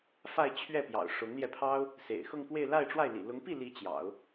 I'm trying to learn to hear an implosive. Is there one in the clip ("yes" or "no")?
no